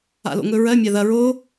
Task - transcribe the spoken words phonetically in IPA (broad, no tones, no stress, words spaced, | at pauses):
a̰lo̰ŋɵɹɜ mʲaðɐ ɹo